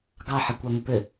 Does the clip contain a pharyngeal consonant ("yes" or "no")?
yes